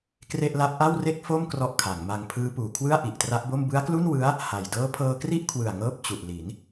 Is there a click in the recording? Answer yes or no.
no